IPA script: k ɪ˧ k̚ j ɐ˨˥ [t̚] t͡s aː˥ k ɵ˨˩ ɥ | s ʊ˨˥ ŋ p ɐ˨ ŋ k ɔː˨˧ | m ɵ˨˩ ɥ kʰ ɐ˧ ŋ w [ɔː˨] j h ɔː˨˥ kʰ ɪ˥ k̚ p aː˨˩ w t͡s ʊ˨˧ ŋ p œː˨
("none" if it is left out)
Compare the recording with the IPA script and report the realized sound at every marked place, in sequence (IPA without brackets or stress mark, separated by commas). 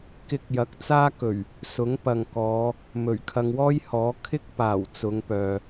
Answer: k̚, ɔː˥